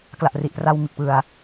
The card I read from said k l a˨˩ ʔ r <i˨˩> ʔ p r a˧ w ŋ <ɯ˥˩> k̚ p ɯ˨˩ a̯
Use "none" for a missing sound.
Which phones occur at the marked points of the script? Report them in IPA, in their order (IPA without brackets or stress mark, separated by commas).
i˨˩, ɯ˨˩